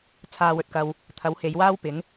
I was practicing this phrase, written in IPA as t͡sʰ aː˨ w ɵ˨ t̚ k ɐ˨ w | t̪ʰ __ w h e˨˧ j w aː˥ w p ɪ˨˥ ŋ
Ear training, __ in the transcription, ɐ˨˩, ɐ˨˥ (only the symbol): ɐ˨˥